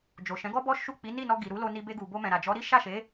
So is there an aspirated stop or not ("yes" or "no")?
no